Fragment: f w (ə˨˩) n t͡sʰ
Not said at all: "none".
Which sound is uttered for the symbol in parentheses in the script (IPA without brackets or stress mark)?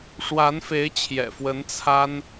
ə˧˥